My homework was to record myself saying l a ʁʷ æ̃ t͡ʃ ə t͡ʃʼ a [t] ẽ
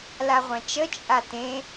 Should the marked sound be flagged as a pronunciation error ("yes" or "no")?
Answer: no